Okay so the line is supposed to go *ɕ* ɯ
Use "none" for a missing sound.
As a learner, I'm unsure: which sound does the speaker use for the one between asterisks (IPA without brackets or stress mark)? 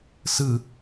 s